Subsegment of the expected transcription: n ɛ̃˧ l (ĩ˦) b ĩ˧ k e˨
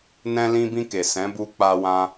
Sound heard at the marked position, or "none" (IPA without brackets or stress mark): ĩ˧